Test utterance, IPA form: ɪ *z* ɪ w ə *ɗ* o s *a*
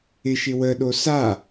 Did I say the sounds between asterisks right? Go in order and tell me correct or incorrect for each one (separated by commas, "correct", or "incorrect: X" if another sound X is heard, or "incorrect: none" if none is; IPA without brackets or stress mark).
incorrect: ʃ, correct, correct